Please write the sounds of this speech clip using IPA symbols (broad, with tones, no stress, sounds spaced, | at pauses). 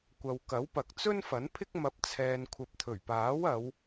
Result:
kʷ ɐ˨ w k ɐ˨˥ w p ɐ˨ k̚ t͡s ɵ˥ n f ɐ˨˥ n pʰ ɪ˥ k̚ m ɐ˧ p̚ t͡sʰ ɛː˧ n kʷʰ ɐ˧ p̚ t̪ʰ ɵ˨˩ ɥ p aː˨˥ w ɐ˨˧ w